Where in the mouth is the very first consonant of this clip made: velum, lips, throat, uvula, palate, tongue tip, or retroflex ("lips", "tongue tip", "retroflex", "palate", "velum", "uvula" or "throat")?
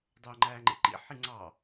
tongue tip